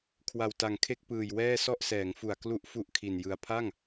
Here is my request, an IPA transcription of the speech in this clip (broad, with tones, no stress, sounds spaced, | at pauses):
kʰ w a˨˩ w t a˨˩ ŋ kʰ e˥˩ k̚ p ɯː˨˩ j w ɛː˥˩ s ɔ˥˩ ʔ s ɛː˩˦ ŋ f u˨˩ a̯ k l u˥˩ ʔ f u˥˩ ʔ kʰ i˨˩ n j ɯ˧ a̯ pʰ a˥˩ ŋ